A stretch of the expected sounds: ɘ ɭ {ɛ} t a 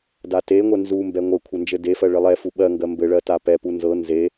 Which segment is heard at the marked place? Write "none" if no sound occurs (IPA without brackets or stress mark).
ɜ